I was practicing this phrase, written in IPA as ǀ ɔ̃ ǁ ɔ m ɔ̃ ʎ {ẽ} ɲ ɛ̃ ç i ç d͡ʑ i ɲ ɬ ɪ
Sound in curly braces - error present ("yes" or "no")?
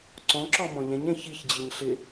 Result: yes